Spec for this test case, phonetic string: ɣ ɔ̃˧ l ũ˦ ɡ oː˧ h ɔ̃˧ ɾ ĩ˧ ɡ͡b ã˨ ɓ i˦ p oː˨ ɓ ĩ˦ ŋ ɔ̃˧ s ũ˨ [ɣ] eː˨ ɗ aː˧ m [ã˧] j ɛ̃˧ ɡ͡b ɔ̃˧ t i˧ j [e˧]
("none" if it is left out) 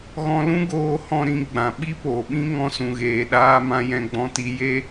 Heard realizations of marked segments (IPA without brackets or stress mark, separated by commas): ɣ, ã˧, e˦